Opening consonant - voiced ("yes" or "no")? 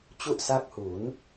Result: no